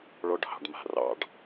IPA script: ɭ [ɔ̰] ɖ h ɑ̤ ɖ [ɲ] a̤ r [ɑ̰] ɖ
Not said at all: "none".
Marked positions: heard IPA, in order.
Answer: ɔ, m, ɑ̰

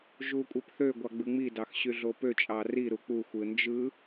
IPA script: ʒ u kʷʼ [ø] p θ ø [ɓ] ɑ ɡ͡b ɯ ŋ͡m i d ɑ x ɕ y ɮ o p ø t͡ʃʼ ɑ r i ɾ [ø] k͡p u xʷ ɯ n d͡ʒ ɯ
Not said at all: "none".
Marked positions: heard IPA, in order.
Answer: e, ɡʷ, u

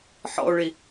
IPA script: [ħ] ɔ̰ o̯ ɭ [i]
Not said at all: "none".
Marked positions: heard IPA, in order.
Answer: ħ, i

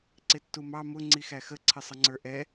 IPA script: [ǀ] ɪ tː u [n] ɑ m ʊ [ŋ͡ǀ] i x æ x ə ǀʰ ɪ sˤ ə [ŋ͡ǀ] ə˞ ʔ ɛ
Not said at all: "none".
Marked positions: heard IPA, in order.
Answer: ǀ, m, ŋ͡ǀ, ŋ͡ǀ

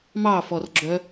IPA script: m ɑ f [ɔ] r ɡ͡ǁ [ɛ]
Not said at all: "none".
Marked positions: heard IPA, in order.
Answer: ɔ, œ

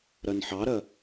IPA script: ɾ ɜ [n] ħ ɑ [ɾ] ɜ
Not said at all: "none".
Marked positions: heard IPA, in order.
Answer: n, ɾ

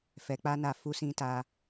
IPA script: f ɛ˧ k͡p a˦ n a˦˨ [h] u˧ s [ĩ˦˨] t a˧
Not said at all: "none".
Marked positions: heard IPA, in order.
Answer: f, ĩ˧

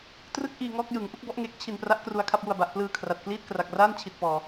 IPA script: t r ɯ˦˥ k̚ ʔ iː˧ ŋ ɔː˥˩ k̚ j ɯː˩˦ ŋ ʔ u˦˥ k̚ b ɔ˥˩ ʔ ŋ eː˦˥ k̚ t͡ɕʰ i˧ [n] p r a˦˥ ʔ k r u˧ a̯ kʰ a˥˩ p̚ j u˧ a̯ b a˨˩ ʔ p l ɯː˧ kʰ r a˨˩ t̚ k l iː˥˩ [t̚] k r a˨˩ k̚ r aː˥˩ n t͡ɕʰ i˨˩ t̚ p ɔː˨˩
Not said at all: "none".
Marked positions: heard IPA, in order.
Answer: n, t̚

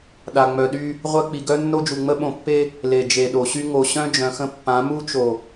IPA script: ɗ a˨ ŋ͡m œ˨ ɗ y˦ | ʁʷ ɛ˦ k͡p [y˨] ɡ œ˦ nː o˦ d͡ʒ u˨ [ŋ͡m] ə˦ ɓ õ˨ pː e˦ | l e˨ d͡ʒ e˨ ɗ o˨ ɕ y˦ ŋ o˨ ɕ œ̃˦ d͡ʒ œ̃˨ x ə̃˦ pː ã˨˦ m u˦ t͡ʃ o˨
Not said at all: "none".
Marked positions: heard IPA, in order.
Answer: i˨, ŋ͡m

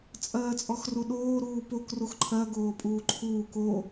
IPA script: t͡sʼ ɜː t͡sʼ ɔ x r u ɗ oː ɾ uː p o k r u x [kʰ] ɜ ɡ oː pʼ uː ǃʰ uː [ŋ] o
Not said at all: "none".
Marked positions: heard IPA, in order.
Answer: ǃʰ, k

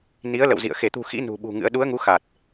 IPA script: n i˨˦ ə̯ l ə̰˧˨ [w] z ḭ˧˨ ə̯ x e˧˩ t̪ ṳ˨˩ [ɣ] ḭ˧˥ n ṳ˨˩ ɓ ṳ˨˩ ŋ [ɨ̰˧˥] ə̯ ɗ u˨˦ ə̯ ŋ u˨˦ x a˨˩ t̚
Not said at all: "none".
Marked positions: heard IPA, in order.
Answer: w, x, ɨ̰˧˥

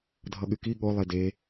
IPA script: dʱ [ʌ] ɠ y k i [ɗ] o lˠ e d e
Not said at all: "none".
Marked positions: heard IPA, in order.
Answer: ʌ, ɠ

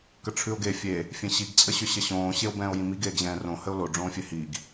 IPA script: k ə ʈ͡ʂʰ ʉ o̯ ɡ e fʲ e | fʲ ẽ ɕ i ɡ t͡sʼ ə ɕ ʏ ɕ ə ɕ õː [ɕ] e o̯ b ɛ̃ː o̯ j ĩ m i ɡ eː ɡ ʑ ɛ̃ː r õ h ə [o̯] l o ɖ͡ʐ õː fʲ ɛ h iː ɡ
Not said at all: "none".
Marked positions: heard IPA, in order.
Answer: ɕ, o̯

